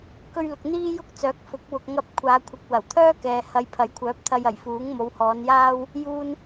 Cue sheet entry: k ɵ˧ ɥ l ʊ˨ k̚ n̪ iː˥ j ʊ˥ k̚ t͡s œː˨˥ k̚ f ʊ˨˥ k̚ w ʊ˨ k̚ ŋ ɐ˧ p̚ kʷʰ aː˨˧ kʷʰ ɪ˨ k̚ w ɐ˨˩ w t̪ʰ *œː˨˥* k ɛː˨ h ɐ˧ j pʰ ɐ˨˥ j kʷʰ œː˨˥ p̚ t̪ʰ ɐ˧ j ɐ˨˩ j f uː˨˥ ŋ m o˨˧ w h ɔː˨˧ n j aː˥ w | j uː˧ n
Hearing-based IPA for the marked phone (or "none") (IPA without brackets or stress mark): œː˥